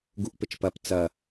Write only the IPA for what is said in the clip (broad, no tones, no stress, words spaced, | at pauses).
ɡuʔpɘt͡ʃpɐp t͡sɐ